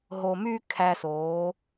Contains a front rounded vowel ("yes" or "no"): yes